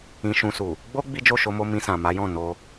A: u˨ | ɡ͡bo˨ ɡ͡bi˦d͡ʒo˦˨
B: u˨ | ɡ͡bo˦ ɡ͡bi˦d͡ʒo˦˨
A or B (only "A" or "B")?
B